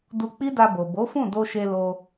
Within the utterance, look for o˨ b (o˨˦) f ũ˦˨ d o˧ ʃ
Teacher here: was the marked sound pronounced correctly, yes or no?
yes